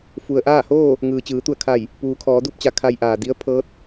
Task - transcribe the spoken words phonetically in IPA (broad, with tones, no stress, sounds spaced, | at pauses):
f u˩ ə̯ ʔ aː˥˨ h oː˥˨ | ŋ ɯː˩ t͡ɕ ɯː˩˧ t̪ u˧˩ ə̯ kʰ a˧˩ j | p uː˧ kʰ ɔː˩˧ d u˥˨ p̚ t͡ɕ a˧ kʰ a˧ j ʔ aː˩ d i˧˥ ə̯ pʰ ɤː˧˥ t̚